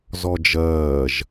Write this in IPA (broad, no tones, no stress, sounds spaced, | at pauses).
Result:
z ɔ d͡ʒ ɜː ʒ